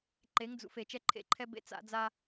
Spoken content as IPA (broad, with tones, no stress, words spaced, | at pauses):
ǃe˨˦ŋd͡zṵ˨fe˨ t͡ʃɛ˦ǃʰḛ˦ǃʰɛ˦ bḛ˦t͡sa̰˦d͡za˦